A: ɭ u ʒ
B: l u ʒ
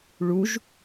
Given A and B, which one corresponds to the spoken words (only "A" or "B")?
A